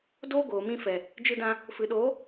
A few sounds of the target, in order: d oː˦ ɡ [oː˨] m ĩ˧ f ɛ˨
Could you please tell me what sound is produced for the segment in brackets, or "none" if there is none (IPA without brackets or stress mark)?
oː˨